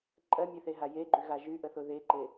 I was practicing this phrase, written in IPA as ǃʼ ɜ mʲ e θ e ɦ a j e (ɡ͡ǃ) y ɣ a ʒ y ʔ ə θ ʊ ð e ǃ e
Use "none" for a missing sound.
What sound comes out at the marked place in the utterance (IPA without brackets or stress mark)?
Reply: ɡ͡ǃ